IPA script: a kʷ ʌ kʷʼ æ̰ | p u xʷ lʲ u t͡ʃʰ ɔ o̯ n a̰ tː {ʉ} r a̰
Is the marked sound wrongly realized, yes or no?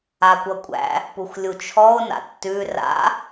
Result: no